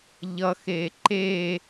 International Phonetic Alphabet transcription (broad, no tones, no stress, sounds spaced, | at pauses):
ʎ ʌ x e ǃ e